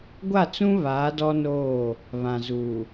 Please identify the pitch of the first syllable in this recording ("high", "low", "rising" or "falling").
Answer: falling